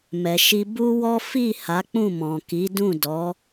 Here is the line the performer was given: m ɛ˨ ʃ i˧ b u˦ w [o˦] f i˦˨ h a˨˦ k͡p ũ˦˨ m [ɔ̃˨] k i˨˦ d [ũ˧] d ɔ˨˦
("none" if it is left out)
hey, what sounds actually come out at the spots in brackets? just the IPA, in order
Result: ɔ˦, ɔ̃˨, ũ˦˨

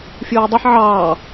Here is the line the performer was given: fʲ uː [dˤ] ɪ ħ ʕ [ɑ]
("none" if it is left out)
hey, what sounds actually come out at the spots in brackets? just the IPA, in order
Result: dˤ, ɑː

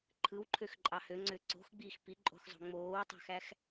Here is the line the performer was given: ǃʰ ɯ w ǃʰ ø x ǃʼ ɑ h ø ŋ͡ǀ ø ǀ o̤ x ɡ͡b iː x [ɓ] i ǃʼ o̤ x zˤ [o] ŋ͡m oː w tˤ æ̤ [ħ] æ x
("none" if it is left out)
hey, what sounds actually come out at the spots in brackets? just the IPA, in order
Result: p, o̤, x

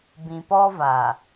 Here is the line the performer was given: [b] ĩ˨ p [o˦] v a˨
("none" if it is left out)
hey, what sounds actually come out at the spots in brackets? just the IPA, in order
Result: b, ɔ˦

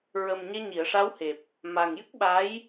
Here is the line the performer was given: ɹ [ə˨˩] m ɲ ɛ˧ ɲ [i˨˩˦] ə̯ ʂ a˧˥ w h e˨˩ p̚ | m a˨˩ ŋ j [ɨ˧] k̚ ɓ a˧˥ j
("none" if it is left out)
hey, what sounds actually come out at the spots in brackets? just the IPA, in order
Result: ə˨˩, i˨˩˨, ɨ˦˥

